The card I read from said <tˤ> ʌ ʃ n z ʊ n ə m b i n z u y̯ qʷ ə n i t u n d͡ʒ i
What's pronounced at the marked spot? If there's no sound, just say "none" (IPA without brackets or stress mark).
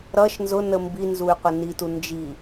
ɾ